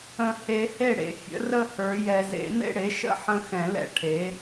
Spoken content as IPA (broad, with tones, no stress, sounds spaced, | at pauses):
ə̃˨ h e˨˩˦ h e˥˩ ɽ ḛ˨˩˦ fʲ ə̰˩˥ r ə˥˧ h ə˞˨˩˦ j ɛ˨ z ḛ˨˩˦ n ḛ˥˧ ɽ e˩˥ ʃ ə̰˦˥ ħ ə̃˥˧ x ɛ̃˨˩˦ l ɛ̰˥˩ ʈʰ e˩˥